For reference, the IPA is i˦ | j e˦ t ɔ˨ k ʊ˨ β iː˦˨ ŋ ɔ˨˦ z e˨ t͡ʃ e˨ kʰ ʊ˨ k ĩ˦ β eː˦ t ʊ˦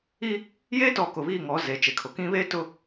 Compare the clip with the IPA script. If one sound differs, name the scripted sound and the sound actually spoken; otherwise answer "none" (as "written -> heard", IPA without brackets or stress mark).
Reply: none